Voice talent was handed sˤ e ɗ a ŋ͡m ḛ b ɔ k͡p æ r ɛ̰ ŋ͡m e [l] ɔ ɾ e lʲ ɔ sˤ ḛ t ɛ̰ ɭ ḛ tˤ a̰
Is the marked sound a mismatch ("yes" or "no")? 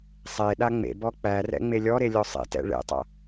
yes